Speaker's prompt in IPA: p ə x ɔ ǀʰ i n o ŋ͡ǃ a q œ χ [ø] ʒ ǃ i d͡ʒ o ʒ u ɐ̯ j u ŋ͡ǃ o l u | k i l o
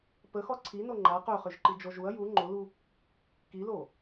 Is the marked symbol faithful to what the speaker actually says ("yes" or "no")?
yes